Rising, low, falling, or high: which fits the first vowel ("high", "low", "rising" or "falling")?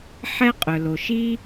high